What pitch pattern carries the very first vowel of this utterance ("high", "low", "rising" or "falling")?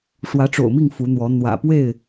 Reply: rising